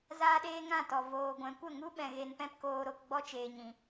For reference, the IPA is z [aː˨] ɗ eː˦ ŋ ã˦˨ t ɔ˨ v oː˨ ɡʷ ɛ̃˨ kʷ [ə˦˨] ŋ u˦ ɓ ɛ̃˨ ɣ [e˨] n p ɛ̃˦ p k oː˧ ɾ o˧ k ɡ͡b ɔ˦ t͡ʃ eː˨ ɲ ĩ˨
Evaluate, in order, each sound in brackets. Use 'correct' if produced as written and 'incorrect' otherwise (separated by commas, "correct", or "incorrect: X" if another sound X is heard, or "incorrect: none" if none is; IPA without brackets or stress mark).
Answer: incorrect: aː˦, correct, correct